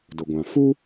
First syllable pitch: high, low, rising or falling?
low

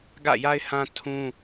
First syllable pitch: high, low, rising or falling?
falling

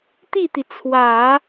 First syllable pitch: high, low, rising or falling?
falling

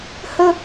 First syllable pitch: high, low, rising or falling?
high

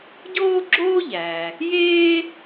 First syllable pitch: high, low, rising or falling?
high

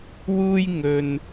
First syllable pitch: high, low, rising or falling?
high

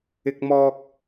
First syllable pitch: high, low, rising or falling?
high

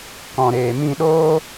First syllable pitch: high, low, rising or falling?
low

